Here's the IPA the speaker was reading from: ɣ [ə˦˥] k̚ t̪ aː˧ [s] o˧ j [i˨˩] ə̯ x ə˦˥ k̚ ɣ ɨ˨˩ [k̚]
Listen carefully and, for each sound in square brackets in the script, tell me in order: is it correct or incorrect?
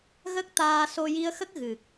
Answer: correct, correct, incorrect: i˧, correct

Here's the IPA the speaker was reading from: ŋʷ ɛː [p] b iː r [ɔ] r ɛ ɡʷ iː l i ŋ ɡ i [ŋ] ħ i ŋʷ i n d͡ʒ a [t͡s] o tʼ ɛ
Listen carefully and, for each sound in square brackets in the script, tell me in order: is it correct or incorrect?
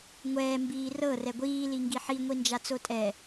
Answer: incorrect: m, incorrect: ɤ, incorrect: none, correct

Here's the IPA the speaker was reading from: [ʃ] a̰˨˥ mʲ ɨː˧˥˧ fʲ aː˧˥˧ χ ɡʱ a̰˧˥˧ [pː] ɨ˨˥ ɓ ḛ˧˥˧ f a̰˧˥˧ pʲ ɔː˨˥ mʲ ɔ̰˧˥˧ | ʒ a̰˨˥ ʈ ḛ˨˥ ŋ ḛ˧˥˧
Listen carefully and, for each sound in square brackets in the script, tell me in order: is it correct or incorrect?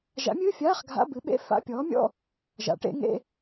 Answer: incorrect: ʒ, incorrect: b

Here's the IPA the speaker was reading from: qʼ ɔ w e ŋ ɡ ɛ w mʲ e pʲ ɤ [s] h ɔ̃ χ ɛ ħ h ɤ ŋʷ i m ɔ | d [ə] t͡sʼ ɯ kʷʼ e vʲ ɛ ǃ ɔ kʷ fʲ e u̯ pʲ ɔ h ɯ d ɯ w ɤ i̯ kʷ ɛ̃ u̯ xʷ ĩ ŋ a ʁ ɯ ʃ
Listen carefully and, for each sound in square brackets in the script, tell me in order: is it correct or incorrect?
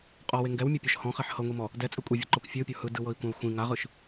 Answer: incorrect: ʃ, incorrect: ɛ

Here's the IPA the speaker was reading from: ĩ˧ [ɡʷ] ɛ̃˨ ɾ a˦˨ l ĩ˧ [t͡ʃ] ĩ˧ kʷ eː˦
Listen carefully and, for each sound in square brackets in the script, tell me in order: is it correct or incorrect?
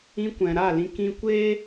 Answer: incorrect: kʷ, incorrect: k

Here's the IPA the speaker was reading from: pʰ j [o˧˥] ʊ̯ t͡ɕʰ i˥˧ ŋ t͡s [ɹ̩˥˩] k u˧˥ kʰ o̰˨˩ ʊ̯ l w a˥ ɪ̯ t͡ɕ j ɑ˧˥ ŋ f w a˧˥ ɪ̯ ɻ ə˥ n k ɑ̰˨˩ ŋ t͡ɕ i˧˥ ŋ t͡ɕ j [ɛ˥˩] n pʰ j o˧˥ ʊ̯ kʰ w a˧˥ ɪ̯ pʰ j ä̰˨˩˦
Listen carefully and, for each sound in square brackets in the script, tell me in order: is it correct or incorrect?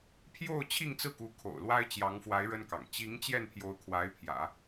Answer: incorrect: o˥˧, correct, correct

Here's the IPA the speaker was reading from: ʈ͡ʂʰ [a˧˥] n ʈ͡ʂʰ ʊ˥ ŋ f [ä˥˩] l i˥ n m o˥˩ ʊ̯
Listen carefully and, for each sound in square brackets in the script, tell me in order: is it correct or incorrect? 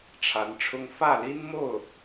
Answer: correct, correct

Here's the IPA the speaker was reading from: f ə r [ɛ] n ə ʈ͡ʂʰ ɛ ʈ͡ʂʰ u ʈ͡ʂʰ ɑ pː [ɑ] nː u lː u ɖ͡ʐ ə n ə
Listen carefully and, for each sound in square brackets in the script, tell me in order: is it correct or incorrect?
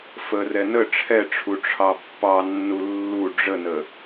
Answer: correct, correct

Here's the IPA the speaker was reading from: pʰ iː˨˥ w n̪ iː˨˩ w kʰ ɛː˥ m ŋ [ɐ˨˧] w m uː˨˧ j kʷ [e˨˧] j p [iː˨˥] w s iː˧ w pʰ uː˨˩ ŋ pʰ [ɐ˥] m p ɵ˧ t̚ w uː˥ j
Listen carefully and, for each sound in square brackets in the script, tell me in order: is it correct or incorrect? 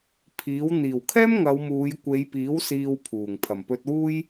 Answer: correct, correct, correct, incorrect: ɐ˨˩

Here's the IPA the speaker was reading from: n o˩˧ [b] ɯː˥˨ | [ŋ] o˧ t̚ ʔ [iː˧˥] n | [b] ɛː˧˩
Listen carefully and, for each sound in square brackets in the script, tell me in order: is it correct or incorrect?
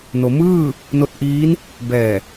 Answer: incorrect: m, incorrect: n, correct, correct

